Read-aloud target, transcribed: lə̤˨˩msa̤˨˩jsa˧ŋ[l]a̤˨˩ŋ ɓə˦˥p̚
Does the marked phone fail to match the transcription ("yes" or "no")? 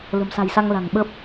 no